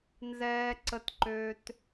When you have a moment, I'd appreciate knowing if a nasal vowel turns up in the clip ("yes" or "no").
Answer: no